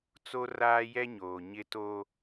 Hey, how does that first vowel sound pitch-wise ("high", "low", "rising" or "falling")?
high